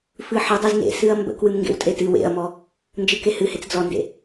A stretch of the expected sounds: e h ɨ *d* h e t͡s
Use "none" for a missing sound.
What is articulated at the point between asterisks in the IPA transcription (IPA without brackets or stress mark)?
none